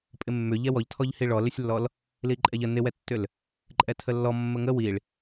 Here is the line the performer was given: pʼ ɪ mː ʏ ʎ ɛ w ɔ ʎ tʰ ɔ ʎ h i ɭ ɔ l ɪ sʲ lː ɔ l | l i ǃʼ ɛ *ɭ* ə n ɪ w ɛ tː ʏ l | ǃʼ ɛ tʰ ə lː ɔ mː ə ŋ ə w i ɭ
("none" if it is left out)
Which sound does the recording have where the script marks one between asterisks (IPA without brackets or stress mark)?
ʎ